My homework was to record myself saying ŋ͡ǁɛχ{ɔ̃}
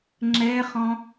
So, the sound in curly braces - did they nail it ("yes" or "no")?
yes